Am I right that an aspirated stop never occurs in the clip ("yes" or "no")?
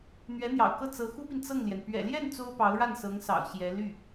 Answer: yes